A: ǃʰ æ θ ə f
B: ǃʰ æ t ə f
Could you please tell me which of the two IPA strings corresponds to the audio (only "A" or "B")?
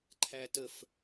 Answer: B